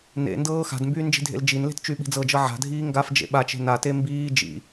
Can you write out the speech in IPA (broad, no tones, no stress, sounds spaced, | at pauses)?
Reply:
n ḛ n d ɤː x a̤ d m b yː n d͡ʒ i̤ dʱ ḛ l d͡ʒ i n l e̤ t t͡ʃ y ɓ i̤ d͡z ɤ d͡ʒ ɤ ʕ a̤ dʱ iː ŋ ɡ a f d͡ʒ ḛ ɓ a t͡ʃ e̤ n a t e m b iː d͡ʒ ḭ